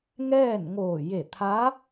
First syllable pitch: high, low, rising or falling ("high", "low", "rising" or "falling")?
falling